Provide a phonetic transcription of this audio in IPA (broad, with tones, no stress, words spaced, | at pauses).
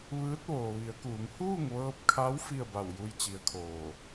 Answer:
ʋɯː˧˥t̚ʋoː˩ʋi˩˧ə̯kuː˩˧ŋ huː˥˨ŋʋɤː˧p̚kʰa˧˥w fi˥˨ə̯ba˧˩wju˧j t͡ɕi˧˥ə̯kʰoː˧˩